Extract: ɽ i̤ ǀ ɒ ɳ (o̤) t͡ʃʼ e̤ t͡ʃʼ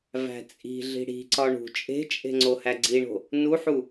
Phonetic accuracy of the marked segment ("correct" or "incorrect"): incorrect